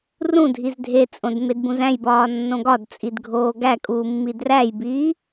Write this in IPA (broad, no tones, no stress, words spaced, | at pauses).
rũdʱiz dʱet͡sʼõd medbũzæ̃jbɒː nːõɡɒdt͡sʼid ɡʱoːɡækʼuː mːidræjbiː